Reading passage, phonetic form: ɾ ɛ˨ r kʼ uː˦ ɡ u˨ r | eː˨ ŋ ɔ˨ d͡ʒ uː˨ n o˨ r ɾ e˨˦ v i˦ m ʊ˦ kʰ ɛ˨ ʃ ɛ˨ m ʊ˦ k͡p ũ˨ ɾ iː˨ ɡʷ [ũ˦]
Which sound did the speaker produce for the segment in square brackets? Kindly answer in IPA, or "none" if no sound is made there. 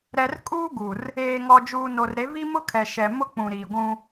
ũ˦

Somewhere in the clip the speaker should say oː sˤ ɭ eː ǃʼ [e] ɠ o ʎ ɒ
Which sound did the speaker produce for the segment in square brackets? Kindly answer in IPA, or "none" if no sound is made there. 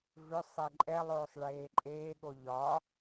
eː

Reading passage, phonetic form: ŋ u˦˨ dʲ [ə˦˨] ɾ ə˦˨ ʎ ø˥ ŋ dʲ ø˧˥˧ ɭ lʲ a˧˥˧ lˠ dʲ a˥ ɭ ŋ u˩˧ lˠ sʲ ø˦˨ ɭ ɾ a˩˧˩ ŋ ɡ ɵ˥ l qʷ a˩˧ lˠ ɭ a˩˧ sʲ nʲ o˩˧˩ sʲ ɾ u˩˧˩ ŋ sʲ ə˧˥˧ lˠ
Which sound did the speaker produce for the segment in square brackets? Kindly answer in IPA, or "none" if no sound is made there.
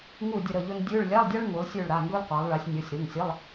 ə˦˨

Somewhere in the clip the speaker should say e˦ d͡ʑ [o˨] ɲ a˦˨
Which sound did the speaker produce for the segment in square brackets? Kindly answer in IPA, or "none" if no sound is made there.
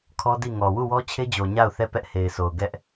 o˨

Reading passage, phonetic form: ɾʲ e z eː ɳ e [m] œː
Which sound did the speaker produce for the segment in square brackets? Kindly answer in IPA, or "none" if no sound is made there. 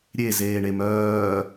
m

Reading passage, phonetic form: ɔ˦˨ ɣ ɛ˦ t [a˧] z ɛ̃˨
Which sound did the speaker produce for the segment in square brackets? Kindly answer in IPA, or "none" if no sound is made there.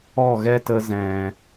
ə˧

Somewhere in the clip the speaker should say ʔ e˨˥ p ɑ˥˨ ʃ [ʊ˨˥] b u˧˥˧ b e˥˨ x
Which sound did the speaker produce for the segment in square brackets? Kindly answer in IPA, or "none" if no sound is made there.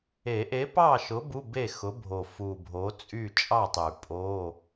ʊ˨˥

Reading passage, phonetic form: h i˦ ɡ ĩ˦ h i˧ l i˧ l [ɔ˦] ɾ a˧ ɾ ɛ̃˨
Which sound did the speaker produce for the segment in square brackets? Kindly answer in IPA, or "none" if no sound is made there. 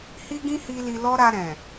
ɔ˦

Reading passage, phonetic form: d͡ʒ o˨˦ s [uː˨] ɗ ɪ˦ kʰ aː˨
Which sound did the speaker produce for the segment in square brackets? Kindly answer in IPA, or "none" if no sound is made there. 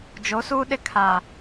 uː˦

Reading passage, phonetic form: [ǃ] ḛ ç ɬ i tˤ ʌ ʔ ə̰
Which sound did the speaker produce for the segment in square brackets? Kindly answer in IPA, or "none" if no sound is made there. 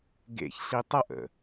ɡ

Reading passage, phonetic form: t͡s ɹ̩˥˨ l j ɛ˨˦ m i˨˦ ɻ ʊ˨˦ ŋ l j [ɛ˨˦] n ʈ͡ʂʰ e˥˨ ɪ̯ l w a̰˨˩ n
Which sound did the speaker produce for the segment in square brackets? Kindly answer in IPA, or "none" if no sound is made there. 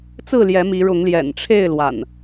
ɛ̰˨˩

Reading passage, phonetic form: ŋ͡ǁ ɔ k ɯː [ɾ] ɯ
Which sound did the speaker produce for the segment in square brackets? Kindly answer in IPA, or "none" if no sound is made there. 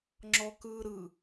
ɾ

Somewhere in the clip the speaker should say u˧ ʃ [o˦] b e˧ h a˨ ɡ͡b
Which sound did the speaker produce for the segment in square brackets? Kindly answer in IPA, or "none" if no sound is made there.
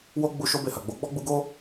o˦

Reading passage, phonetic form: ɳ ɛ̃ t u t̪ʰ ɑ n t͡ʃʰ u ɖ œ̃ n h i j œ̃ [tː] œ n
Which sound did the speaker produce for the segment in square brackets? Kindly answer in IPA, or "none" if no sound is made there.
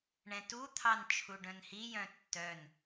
tː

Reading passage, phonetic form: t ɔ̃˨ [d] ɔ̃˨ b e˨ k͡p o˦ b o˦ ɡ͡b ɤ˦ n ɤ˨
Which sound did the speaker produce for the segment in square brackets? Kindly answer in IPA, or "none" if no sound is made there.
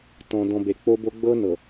d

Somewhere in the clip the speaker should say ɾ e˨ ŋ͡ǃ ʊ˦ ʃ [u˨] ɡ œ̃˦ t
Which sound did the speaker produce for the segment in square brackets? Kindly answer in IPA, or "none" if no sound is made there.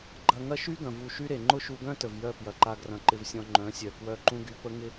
u˧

